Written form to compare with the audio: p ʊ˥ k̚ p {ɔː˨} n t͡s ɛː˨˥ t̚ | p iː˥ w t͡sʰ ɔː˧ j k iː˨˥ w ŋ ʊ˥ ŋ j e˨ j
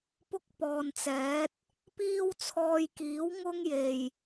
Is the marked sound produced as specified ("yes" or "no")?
yes